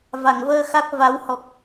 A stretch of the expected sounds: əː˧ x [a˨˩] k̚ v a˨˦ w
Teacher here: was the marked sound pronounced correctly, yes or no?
no